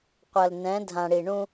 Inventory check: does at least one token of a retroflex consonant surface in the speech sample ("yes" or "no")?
yes